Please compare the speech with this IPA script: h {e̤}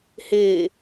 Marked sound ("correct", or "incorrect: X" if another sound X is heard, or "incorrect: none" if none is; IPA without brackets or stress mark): incorrect: e